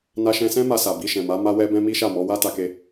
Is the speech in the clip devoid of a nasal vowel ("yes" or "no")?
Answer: no